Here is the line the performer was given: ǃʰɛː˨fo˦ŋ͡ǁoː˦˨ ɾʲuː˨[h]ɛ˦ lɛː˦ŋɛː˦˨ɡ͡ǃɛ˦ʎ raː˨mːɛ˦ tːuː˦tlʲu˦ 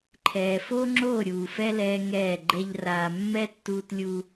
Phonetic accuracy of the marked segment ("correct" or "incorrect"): incorrect